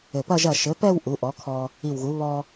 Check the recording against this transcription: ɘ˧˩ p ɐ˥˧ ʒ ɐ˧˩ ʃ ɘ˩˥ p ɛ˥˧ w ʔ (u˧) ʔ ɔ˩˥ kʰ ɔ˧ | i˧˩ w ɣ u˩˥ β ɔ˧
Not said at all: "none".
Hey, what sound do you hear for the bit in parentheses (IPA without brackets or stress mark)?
u˩˥